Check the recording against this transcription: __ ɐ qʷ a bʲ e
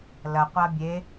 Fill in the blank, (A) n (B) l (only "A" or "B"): B